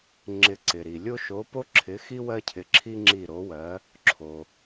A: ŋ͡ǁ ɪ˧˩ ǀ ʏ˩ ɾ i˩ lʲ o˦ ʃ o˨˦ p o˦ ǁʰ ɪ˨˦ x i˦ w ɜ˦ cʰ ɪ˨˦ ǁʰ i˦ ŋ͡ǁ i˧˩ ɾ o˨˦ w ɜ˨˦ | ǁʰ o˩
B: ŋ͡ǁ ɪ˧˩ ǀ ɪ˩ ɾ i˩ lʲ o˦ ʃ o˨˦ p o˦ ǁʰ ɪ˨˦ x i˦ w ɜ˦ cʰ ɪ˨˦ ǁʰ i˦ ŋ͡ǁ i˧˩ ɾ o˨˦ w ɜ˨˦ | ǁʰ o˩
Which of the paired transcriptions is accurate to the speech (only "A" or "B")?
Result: B